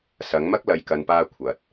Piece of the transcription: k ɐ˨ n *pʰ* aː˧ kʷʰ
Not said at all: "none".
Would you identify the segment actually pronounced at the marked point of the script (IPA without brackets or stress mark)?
p